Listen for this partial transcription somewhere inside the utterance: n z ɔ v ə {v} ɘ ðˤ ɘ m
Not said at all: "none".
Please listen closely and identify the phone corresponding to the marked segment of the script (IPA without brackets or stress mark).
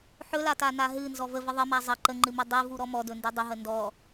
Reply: v